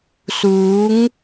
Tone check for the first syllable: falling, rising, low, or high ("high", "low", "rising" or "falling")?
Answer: rising